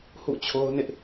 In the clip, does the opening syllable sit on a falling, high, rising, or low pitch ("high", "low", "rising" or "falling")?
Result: falling